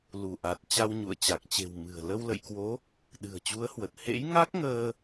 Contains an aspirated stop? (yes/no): no